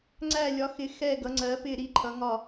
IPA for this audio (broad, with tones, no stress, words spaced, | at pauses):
ŋ͡ǀæ˧˩lʲɒ˩˧xɪ˩˧ xɛ˧˩ɡʌ˩˧ŋ͡ǀɜ˩˧pɪ˧˩ ɾi˧˩ǃʰʌ˩˧ŋɒ˧˩